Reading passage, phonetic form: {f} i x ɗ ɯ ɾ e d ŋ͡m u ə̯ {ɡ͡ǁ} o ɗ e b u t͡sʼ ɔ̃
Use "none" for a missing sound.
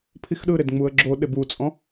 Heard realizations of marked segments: pʰ, ɡ͡ǁ

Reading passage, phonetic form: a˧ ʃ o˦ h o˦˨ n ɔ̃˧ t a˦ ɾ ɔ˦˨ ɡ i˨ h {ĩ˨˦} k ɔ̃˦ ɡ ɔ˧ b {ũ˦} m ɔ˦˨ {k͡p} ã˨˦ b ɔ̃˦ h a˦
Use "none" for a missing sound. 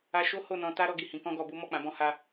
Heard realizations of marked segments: ĩ˨˦, u˦, k͡p

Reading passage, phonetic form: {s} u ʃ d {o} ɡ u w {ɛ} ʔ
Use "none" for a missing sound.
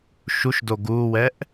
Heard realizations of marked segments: ʃ, o, ɛ

